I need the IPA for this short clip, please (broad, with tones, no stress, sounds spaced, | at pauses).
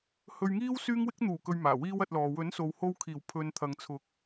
h ɵ˧ ɥ ŋ iː˥ w s yː˥ ŋ w ɪ˥ k̚ n̪ uː˨˩ k ɵ˨ ɥ m aː˨˩ w iː˥ w ɐ˧ t̚ l ɔː˨ w ɵ˨˥ n s o˨ w h o˧ w kʰ iː˨˩ w pʰ ɵ˧ n t̪ʰ ɐ˨˧ ŋ t͡sʰ ʊ˨˥ k̚